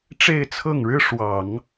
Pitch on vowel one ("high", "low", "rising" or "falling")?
falling